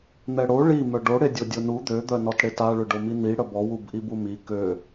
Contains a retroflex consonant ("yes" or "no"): yes